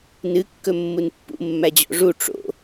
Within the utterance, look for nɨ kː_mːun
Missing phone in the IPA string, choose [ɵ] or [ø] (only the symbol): ɵ